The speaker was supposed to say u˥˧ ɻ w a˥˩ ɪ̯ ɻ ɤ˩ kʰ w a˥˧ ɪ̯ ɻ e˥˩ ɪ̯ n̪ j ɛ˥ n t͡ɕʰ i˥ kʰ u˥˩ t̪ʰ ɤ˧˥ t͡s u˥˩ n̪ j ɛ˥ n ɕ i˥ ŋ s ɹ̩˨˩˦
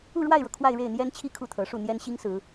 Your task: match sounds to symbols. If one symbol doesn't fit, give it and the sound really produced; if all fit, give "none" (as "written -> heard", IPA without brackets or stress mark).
t͡s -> ʂ